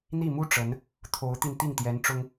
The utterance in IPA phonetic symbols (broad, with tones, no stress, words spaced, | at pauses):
n̪i˥˩mu˥ ʈ͡ʂə˧˥n | t̪ʰo˧˥ʊ̯t̪i˧n t̪i˥˩ŋt̪jɛ˧˥n ʈ͡ʂʊ˥ŋ